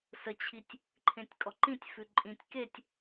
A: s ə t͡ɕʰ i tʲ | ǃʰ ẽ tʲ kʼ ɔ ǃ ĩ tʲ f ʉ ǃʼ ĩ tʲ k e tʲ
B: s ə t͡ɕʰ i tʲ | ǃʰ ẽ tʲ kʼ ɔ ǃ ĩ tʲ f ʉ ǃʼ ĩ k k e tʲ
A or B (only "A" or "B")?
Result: A